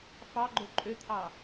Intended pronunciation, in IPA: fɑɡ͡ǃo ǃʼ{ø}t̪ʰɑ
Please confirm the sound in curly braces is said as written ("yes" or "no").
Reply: yes